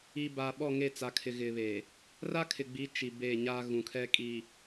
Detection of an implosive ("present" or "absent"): present